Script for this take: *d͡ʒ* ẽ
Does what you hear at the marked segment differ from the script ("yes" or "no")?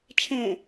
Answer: yes